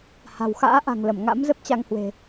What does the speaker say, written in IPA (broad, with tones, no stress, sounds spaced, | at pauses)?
h a̤˨˩ w x a̰ː˧˥ ʔ a̤˨˩ ŋ l ə˧˩ m ŋ a̰˧˥ m z ə˦˥ p̚ t͡ɕ a˧ ŋ h w e̤˨˩